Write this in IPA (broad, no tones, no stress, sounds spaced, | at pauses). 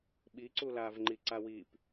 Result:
ɓ i ǀ u l aː v ŋ͡ǃ i ǀ a w i p